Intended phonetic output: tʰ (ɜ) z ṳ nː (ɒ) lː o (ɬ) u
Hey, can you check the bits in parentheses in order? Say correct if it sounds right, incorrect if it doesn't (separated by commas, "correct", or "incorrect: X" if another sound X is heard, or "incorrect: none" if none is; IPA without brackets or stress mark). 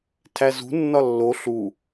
incorrect: æ, correct, correct